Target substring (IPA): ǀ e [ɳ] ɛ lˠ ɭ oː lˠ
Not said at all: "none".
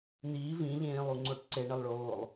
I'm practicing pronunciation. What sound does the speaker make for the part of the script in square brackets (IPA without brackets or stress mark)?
ɳ